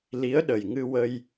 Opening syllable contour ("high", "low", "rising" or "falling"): rising